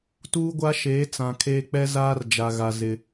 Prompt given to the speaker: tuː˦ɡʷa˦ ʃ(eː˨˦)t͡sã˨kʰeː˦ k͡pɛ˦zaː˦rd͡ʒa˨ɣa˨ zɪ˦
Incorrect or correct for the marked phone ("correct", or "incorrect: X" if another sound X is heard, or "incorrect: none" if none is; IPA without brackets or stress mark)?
correct